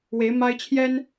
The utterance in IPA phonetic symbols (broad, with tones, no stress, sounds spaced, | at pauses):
w e˨˦ ɪ̯ m a˦ ɪ̯ t͡ɕʰ j ɛ˦ n